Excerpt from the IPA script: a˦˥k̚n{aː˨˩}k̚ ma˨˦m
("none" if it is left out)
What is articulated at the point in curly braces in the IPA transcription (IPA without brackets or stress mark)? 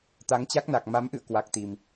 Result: a˨˩